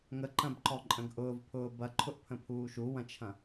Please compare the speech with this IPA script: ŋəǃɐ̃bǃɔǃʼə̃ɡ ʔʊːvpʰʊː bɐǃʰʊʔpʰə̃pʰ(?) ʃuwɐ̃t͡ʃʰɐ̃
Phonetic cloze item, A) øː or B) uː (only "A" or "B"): B